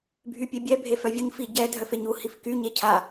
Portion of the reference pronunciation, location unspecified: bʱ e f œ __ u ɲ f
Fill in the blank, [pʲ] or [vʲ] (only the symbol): vʲ